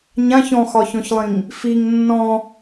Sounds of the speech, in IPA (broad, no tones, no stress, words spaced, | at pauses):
ɲãç ɔ̃xɒçɔ̃çlˠĩŋ | fiŋ nːɔ̃